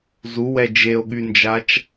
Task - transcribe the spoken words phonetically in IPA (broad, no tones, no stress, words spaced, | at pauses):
zuwɛ d͡ʒeo̯ɠynd͡ʒat͡ʃ